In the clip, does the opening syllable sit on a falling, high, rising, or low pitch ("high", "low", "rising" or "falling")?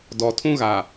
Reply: low